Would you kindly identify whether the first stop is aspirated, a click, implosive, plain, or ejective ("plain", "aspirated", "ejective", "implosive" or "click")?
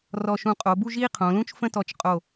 ejective